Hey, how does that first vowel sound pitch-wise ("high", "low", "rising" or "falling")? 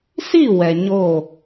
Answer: falling